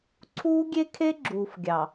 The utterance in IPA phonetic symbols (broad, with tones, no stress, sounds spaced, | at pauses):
ǀʰ uː˦ ɡʲ e˦ kʰ e˦ ɡ͡ǁ uː˨ f ɡʲ ɑ˨